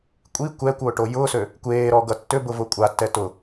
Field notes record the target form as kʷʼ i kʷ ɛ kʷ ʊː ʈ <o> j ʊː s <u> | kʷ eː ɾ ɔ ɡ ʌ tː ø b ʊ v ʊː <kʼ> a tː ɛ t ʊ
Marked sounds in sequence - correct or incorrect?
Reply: correct, incorrect: ø, incorrect: kʷʼ

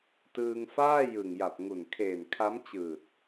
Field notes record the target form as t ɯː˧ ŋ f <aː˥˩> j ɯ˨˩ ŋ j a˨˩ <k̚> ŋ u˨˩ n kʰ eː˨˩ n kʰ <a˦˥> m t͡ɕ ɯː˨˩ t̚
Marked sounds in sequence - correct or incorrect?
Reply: correct, incorrect: p̚, correct

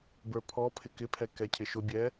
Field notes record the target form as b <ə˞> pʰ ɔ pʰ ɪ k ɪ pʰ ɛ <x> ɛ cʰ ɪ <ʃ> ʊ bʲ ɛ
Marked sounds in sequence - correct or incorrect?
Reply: correct, incorrect: k, correct

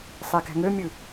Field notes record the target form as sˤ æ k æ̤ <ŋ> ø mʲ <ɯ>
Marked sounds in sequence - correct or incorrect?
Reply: correct, correct

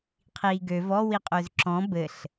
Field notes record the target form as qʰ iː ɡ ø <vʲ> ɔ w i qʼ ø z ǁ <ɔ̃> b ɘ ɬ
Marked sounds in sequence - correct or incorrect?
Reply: incorrect: v, correct

